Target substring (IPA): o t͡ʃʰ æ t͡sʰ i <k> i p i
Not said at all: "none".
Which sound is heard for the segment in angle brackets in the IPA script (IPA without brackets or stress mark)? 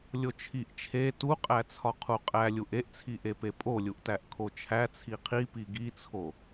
qʰ